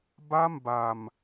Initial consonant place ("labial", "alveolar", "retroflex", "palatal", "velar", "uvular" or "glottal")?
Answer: labial